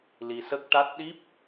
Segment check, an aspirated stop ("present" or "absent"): absent